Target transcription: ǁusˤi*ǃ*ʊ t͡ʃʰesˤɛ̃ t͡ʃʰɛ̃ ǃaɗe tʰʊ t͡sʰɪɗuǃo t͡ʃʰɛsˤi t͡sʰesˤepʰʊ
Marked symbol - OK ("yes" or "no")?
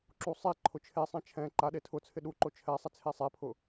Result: no